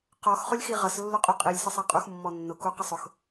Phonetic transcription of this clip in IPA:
q ɔ x χ ʊ lʲ x i ʁ ʌ s lː ʊ qʼ u qʼ i lʲ s ə sˤ æ qʼ u x mː ɔ nː ʊ k u q ə sˤ ʊ x

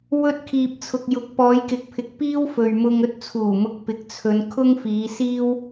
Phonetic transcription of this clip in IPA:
w ɵ˧ t̚ kʰ iː˨ p̚ t͡sʰ ʊ˨ k̚ j ʊ˨ k̚ p ɔː˨˧ j k ɪ˨ k̚ pʰ ɪ˨ k̚ p iː˥ w f ɵ˨ ɥ m ʊ˧ ŋ ɵ˥ t̚ t͡sʰ uː˨˩ m ʊ˧ k̚ p ɪ˨ k̚ t͡sʰ ɵ˨˧ n kʰ ʊ˥ ŋ f iː˨˧ s iː˥ w

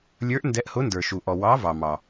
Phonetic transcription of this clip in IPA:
lʲ ə˞˨˥ ʔ n d ɛ˨˥ ʔ h ʊ˨˥ n d ə˞˩ ʃ u˩ ʔ ɔ˩ w ɑ˨˥ v ɑ˩ m ɑ˩

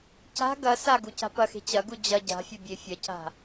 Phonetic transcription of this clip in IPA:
c a̤ ɡ ɐ s a ɡ u c a̤ p ɐ x e̤ t͡ɕ ɐ ɡ u d͡ʑ ɐ ɟ a̤ fʲ ɐ bʲ e fʲ ɐ c a̤

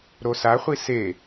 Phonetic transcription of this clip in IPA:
ɾ o s a χʷ i s e

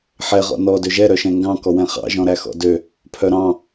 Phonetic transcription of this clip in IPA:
ħ ɛ ʁ ɔ̰ n ɔ d ø ʒ ɛ ɾ œ ʃ ɛ̃ ŋ ɡ ɑ̃ k ɔ w ɛ̃ χ ɑ̰ ʒ ɔ̃ ɾ æ x ɔ̰ d ø | pʰ œ ɾ ɑ̃

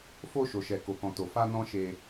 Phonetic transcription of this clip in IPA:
f o˧ ʃ o˨ ʃ ɛ˨ k o˨ k ɔ̃˨ t o˨ f a˧ n ɔ̃˦ ʃ e˧

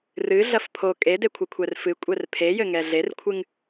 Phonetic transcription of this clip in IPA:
r ɨ ɮ ɐ f pʰ o kʼ e d e kʷʰ ɘ kʷʰ ɛ r f ɨ kʷʼ ɛ r pʰ e j ɘ ŋ ɛ ɮ e r kʷʰ ɨ ŋ

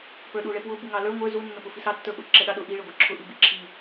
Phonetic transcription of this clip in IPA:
p ə˞ ɗ u ɭ ɛ p w ʊ b u ŋ ɑ l ə˞ ŋʷ ə˞ z u nː ʊ p ʊ f i s ɑ tː ə˞ ɓ ʊ ǁ ɛ ɗ ɑ ɗ ʊ ʔ i ɭ ɛ ɡʷ ə˞ ǁʰ ʊ ʔ i b i ǁʰ i

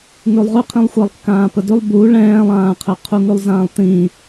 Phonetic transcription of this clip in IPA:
ŋ ʉ lˠ ʁ ʉ qʰ ĩ lˠ xʷ ɛ lˠ kː ãː p ə d ʉ lˠ b u ɭ ɛ̃ː lˠ ãː qʰ ə qʰ u ŋ ʉ lˠ z ãː lˠ t ĩ

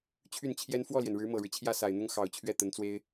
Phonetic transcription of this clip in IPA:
t͡ɕʰ y˥˩ n t͡ɕʰ j ɛ˥ n f w ɔ˥˩ l j ɛ˩ n ɻ ɻ̩˧˥ m ɤ˨˩ ɻ ɻ̩˦ t͡ɕʰ j ä˥˩ s a˨˩ ɪ̯ n̪ ʊ˥ ŋ x ɑ˨˩ ʊ̯ t͡ɕʰ ɥ ɛ˥˩ t̪ ə˧˥ n t͡s w e˥ ɪ̯

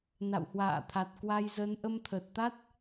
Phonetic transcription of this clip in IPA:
n a̰˧˨ w h w a̰ː˧˨ t̪ʰ a˨˩ t̚ k w a˧ j z ə˨˦ n ʔ ə˧ m t̪ʰ əː˨˩ t̚ t̪ a˦˥ t̚

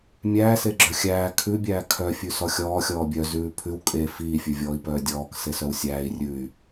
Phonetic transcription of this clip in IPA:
mʲ æː s e ɡ͡ǁ œ xʲ æː kʰ ʉ bʲ æː kʰ œ fʲ ʉ s ɔ xʲ ɔː xʲ ɔː bʲ œ z ʉː pʰ ʉ w kʼ e f iː fʲ ʉ vʲ ɔː i̯ p œː dʲ ɔː k s e s œ w sʲ æː i̯ rʲ ʉ y̯

